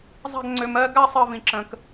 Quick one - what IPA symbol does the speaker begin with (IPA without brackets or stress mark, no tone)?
zˤ